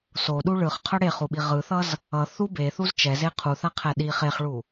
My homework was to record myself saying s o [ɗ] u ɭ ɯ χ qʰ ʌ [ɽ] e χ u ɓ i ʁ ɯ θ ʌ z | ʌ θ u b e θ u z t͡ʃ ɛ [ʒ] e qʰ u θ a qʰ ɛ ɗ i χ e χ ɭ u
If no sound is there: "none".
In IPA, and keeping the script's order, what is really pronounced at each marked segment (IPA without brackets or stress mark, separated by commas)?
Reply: ɗ, ɽ, z